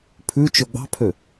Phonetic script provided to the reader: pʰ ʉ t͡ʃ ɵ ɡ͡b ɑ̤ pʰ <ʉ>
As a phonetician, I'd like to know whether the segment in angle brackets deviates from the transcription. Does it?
yes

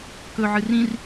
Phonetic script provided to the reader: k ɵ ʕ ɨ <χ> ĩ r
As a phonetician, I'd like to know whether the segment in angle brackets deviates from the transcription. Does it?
yes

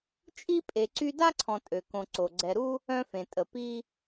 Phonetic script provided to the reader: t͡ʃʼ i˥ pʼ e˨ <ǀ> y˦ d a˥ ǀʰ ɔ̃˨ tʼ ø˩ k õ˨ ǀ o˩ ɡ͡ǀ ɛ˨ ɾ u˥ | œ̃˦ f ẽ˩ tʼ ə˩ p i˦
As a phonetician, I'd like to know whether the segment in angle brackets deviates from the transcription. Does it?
no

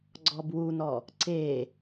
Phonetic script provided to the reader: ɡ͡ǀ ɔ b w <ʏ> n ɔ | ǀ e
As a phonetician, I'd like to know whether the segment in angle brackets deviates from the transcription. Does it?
yes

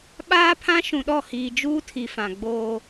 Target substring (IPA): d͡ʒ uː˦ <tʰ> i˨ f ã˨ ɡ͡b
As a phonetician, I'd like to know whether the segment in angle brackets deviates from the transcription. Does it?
no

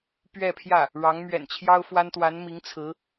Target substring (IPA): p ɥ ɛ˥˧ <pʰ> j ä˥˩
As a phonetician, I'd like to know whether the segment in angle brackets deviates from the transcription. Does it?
no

